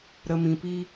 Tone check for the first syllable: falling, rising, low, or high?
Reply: low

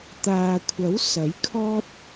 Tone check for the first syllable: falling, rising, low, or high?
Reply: low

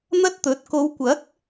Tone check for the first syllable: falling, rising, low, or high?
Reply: high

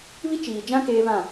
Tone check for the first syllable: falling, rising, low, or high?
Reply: high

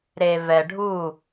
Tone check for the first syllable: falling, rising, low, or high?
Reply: low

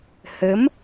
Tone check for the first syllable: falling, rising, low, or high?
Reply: rising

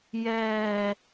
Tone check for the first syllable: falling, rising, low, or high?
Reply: low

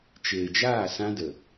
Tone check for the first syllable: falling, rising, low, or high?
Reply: low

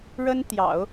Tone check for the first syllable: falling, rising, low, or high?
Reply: high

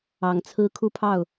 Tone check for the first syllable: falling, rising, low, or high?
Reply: low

